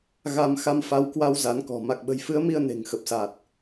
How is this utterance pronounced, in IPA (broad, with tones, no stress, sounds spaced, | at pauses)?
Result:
ɣ a˧ m x a˧ m f a˨˦ w k w a˧ w z a˨˦ n k ɔ̤˨˩ m a˨˩ k̚ ɓ ə̤˨˩ j f ɨ˨˦ ə̯ m i˧ ə̯ n e̤˨˩ ŋ x ə˨˩ p̚ s a˨˩ t̚